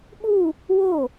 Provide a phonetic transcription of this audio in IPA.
ɓu | wo

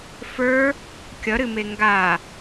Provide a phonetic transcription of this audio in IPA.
fə˞ | kʲʌɾɨme ŋɡa

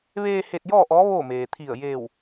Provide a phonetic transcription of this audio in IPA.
ʋeː˧ he˧t̚jɔː˥˨ʔɔː˧˥ ʋoː˥˨meː˩ t̪ʰi˧˩ə̯ jeː˧˩w

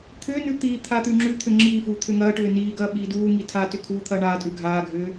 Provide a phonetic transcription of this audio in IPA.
t̪ʰʏːnʉ t̪i t̪ʰat̪ʉŋ͡ǁʉt̪ʰʏ ŋ͡ǁiːfuː t̪ʰʏŋɐːʈʏː niːɡɐː ɓiːduːŋi tʰatʏ kʰuːt̪ʰɐːɳaːtʼʉ ɡʱaːɡʱʏː

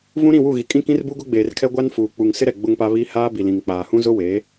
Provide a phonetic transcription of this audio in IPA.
vũ˦ɾĩ˦˨wu˦˨ɣi˨ kʼĩ˦˨kĩ˦rbu˦ɡʊ˦ ɡ͡beː˨rkʰɛ˦ɡʷa˦n fuː˨k͡pu˨ŋ sɪ˦ɾɛ˨ ɡ͡bʊ˦ŋpa˦ βi˦ haː˦bi˨lĩ˨ŋk͡paː˨ hũ˦zʊ˦weː˨˦

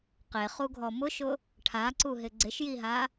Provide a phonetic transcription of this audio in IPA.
qeχuɡʱɔ mʊʃʊ | ʈʰaǀuɦɪ ɡ͡ǀɪʃjiɦa

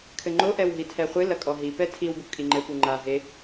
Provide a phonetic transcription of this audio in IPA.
kʰɘŋ͡ǃo ʔɛwɦitʰɛχʷɨ lɐkʼɔɦi pɛtʰiw bukʼiŋ͡ǃɘ puŋ͡ǃa ɦe

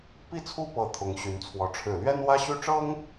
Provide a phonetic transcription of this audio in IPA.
pi˥˩t͡sʰu˥ pɤ˧˥ t̪ʰʊ˧˥ŋɕy˧˥nt͡sʰwɔ˧˥ ʈ͡ʂʰɻ̩˨˩lɥɛ˥n wä˥ɕy˥ʈ͡ʂɤ˥ŋ

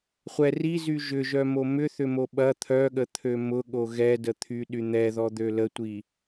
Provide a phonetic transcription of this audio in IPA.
χʷɛ rizy ʒʏʒœmo mʏθʏmo ɓɐ t̪ʰœɠət̪ʰø mʊɠo ɣɛdət̪ʰyɗy n̪ɛðɔd̪ø lətʷi

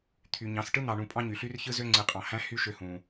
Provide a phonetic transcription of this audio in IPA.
t̪ʰy˨ɲɑ̃˨˦s ʈɯ˦n̪ɑ˨ɳũ˨ pʼɑ̃˦ɲy˨ ɬy˦r çɯ˦zø˦ ŋ͡ǀɯ˨qʼɑ̃˨hæ̃˦hy˦ ʃø˦hũ˨

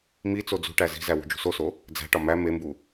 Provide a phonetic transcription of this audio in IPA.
mi t͡sod͡zṳʈæ zi̤zæ wṳd͡ʒṳsoso | d͡zæ̤ʈɒ mæ membu

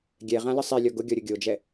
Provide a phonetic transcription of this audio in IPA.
ɡʲɛ ʁãləsˤilʲɔ ɡʊ ɡʲɔɾʲʊɡʲod͡ʒɛ

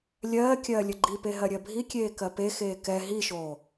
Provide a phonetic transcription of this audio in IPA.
lʲɜː kʲɜːlʲəɡ͡ǃipe ɦɜɾʲɜbʱikʲeː kɜpexeː kɛ ɦiʃoː

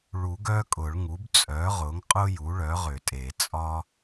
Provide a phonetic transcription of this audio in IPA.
ɭu˨˩˦ɡ œ˦kʼʊ˨˩˦ɭŋu˩˥b t͡sʼœ˩˥ʁʊ˩˥ŋqʼʊ˦ ju˩˥ɭœ˩˥ʁʏ˨˩˦tʼe˨˩˦ t͡sʼɒ˦

